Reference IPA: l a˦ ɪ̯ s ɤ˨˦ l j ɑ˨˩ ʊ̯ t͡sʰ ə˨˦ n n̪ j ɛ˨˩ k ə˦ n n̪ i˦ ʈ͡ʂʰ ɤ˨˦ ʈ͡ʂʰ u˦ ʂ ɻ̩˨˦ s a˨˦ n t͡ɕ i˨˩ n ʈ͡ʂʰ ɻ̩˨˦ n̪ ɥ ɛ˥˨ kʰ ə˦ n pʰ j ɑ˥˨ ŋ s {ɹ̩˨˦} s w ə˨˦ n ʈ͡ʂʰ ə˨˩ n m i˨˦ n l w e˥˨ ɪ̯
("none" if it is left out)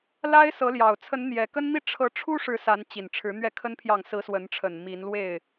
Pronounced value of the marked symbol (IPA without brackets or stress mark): ɹ̩˨˦